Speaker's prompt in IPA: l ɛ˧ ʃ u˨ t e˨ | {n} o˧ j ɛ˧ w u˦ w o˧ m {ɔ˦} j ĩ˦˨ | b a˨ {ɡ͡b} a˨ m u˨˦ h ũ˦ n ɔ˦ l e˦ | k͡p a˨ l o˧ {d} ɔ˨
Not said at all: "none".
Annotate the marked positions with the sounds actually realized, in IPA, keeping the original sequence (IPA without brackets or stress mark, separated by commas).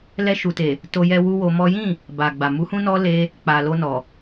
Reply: t, ɔ˦, ɡ͡b, n